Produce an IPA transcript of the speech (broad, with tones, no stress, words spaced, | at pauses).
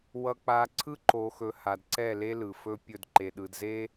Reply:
wʌ˨k͡pa˨ ǀʰɯ˦ǃo˨xɵ˨ ha˨dǀɛ˦˨le˦ lɯ˨fɵ˦ pʲɵ˦˨dǃe˨ɗɯ˨d ze˦